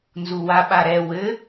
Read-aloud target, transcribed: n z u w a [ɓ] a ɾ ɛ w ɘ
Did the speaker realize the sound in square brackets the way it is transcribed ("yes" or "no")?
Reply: yes